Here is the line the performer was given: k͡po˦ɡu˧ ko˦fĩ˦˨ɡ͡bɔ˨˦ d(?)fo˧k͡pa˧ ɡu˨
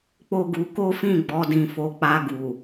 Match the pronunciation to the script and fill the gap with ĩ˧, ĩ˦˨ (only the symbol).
ĩ˧